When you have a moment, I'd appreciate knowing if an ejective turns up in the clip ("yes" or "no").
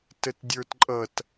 yes